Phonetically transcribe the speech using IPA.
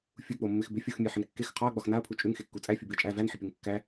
fʲuk͡pomːɪx bɪfʲoxmʲe ħɪnkːex qʰɒɐ̯ ɡ͡bɒxnaɐ̯pʰu t͡ʃʼʉŋxekːu t͡sʼæfʲubɪɐ̯ t͡ʃʼæ vænħɪpʲoŋ kːæ

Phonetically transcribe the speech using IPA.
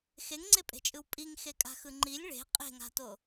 xeŋŋ͡ǀepʼe̤t͡ʃʼɯw pʼiŋxe kʼa̤xɯŋ͡ǃilʲ ɭe̤ qʼe̤ŋa̤to

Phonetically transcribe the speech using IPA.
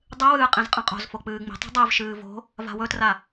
dˤɨwɨː qʼĩzqʼɐ̃qʼo̤zfo k͡pɨːŋ͡mi̤tˤṳ dˤivʃɨː vo̤ | va̤wɵtra

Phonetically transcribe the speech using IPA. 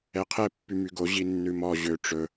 ɛqʰɛ pːymyɡo ʑinːʉmɔ ʑø ʈ͡ʂɵ

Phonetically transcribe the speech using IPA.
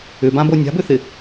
ʏbãbo nʲa̤bʏθɪ

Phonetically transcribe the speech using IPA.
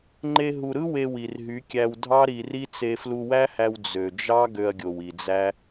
ŋ͡ǃe˧ɦu˨ɾɯ˦ we˧ wi˨rɦy˨˦kʲæ˧w dʱɑ˦ ɾi˧ri˦ t͡se˧flu˧wæ˦hæ˧w d͡zø˨d͡ʒɑ˦ ɡø˧ɐ̯ɡʲo˨w i˨d͡zæ˦

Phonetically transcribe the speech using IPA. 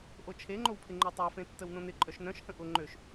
ʔot͡ʃʰeŋ͡ǃowpʰɪ ŋ͡ǃotˤafẽ tːəwnõnɪ ǃʼœʃnœ̃ʃhə̃ ʔʊ ŋ͡ǃøʃ

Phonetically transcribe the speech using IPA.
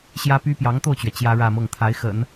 ɕjä˥py˥ pjɑ˧˥ŋt̪o˥˩ʊ̯t͡ɕɥɛ˩ t͡ɕjä˥ɻä˥˧mɤ˥˩ŋ t̪ʰa˧˥ɪ̯xə̰˨˩˦n

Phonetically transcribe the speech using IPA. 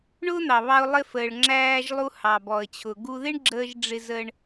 ɳʊː˥n̪ɑ˩βɑ˧ʊ̯ lˠɪ˧fəː˩ɭ ŋ͡ǁæː˧ʒlˠu˧ hɑ˩bɔ˩ə̯t͡ɕʰʊ˩ ɡu˧ðɪ˥ɳɡ͡ǁəː˧ʒ ɖ͡ʐɪ˧zə˧ɳ

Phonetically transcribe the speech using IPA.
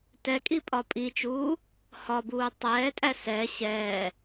tɛkʼi pʼɒpʼit͡ʃuː | hɒbuː tˤɛːtʼæ sɛ ɕɛː

